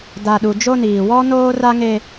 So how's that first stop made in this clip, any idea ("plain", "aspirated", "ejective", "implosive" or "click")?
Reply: plain